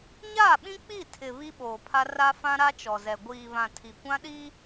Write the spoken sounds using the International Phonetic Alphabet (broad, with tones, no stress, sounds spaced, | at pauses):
ɲ aː˦˨ ɓ ĩ˦ k͡p i˦˨ tʰ ɪ˨ β i˦ ɓ oː˨ pʰ a˦ r a˦ f ã˦ ɾ a˦ t͡ʃ ɔ˨ z ɛ˨ ɡʷ iː˨ β ã˨ tʰ i˨ kʷ ã˦ ɗ i˦